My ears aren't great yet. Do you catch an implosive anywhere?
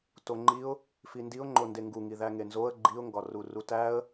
no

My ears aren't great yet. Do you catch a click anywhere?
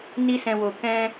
no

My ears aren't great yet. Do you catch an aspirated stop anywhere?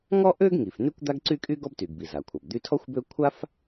yes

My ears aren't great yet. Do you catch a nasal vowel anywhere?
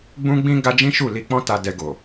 yes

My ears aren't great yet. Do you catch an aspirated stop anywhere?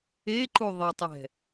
no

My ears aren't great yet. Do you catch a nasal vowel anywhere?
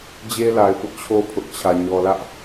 no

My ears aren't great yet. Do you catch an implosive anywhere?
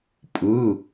no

